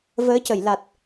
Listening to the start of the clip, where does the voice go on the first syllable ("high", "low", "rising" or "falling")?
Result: rising